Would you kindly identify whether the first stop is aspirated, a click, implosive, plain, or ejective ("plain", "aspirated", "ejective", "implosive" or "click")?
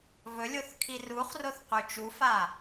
aspirated